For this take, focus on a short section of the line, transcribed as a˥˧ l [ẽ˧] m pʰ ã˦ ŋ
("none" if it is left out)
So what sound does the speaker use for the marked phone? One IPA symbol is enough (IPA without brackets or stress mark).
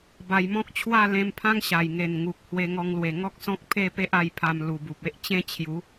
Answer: ẽ˧